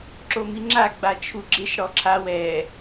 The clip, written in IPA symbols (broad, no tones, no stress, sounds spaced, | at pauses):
ǁ o m i ŋ͡ǁ a ɡ͡b a t͡ʃʰ u ɡ͡ǁ ɪ ʃ ɽ ɔ ǁʰ a w ɛ